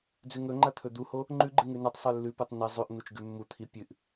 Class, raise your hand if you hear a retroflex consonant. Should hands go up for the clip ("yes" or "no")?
no